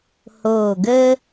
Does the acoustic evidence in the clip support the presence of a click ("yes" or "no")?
no